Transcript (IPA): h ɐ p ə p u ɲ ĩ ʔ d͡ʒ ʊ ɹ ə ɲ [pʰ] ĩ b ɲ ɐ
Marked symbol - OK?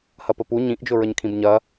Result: no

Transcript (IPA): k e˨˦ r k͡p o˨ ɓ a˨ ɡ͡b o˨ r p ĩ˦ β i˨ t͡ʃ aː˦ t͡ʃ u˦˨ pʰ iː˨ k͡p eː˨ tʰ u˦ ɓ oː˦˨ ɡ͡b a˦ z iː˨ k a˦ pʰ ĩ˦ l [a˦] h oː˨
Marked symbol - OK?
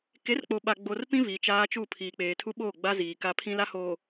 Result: yes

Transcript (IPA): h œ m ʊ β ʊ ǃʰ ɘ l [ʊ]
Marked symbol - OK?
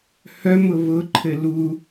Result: no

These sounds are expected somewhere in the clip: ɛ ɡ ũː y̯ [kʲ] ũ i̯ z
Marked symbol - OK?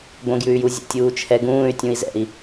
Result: no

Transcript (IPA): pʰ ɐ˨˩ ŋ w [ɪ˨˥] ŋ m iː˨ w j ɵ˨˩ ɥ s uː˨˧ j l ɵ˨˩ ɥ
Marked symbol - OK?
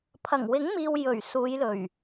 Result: yes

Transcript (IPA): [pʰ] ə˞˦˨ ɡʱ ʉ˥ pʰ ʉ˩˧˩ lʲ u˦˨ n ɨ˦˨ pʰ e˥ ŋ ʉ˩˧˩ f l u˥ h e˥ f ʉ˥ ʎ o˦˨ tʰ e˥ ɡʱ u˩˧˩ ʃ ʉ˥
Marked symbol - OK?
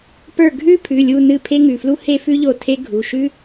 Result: no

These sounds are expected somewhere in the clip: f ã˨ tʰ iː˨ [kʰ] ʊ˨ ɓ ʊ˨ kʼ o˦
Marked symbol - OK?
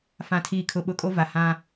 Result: yes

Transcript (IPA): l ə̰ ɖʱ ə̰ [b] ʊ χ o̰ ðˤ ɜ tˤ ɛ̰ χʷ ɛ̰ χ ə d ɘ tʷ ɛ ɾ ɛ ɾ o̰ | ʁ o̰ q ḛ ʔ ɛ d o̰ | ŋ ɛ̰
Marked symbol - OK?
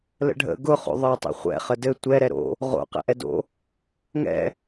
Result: no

